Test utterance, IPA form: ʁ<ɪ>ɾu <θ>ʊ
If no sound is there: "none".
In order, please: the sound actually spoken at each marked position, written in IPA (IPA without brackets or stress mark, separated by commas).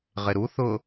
ɪ, θ